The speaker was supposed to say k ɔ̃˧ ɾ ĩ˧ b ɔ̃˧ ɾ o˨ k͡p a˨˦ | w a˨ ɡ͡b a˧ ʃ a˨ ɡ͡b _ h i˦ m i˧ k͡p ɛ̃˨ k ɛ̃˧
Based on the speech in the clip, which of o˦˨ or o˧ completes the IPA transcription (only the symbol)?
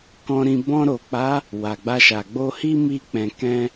o˧